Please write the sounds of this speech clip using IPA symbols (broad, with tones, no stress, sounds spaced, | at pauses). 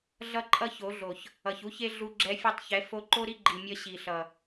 ɮ ʌ˦ ǃʼ ʌ˦ ç o˨˦ ɮ o˨ ç | ʌ˨ ç u˦ ç e˦ ɮ u˧ ɡ͡ǁ ɛ˧ fʲ u˧ tˤ ç ɛ˨˦ f o˧ ǃ o˦ ɾ i˦ ɡ͡ǃ i˨ mʲ ʌ˧ ɕ i˨ ɬ ʌ˨